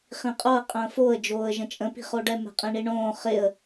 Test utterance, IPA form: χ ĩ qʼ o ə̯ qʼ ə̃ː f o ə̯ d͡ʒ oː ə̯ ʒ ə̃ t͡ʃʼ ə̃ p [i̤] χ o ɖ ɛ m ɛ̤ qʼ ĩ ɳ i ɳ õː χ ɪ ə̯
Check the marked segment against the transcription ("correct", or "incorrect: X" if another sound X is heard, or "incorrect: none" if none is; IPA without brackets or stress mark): correct